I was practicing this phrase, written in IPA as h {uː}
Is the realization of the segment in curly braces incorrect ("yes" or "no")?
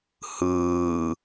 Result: yes